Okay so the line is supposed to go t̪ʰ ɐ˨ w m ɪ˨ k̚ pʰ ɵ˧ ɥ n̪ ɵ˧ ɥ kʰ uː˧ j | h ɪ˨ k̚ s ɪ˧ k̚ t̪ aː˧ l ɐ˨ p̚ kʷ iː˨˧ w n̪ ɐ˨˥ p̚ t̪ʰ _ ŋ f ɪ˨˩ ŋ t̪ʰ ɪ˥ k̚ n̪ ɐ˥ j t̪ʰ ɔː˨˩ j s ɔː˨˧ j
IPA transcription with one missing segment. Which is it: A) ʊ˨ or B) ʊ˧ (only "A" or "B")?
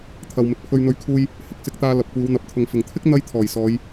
A